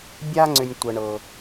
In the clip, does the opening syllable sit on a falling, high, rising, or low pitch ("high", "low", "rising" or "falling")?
high